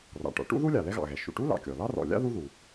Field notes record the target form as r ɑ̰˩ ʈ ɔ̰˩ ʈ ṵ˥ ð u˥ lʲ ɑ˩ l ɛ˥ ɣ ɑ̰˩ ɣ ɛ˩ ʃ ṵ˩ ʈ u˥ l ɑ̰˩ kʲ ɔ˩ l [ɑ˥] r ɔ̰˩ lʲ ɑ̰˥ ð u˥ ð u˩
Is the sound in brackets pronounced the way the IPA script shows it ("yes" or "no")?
yes